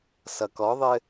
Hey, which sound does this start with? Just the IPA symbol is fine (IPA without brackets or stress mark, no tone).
s